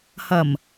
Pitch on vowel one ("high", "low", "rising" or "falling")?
low